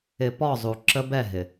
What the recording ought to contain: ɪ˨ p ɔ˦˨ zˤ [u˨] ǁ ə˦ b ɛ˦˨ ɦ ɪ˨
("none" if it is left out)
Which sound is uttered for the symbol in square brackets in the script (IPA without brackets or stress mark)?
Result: u˨